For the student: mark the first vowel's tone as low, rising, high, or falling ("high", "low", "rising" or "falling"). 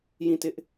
falling